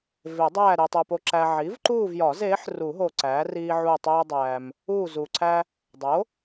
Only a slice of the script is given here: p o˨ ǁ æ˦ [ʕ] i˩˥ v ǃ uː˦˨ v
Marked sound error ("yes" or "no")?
no